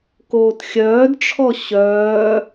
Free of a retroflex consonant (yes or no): no